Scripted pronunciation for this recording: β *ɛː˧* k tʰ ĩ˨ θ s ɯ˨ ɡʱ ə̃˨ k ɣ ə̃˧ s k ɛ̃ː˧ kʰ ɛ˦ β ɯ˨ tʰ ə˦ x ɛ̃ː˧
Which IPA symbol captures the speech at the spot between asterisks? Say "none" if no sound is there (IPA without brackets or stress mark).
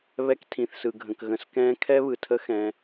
ɛ˧